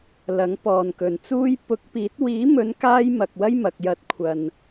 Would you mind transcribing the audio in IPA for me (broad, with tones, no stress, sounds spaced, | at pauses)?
l ɐ˨˥ ŋ p ɔː˨ n k ɵ˨ n t͡s uː˥ j p ʊ˨˥ k̚ p iː˨˥ t̚ w iː˨˥ m ɵ˨˧ n k aː˥ j m ɐ˨ k̚ w ɐ˥ j m ɐ˨ k̚ j ɐ˧ t̚ kʷʰ ɐ˨ n